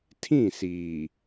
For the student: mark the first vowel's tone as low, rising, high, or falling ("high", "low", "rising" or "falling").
falling